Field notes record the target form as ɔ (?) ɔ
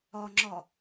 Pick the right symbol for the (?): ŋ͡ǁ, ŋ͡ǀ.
ŋ͡ǁ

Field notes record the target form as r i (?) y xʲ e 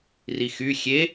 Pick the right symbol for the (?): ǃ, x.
x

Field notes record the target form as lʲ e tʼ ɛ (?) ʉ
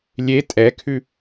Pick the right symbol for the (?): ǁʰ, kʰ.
kʰ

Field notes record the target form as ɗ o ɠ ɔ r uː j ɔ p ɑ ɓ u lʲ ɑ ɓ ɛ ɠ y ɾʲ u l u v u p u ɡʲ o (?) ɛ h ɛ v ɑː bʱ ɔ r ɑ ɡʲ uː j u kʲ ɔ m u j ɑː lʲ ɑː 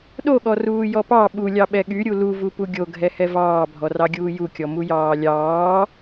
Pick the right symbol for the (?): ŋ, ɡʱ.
ɡʱ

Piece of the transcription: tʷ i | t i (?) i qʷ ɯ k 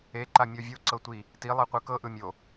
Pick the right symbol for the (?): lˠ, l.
lˠ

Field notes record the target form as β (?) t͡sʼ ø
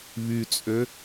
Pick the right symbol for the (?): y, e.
y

